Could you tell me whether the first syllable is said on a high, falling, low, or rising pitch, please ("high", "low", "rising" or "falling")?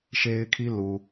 high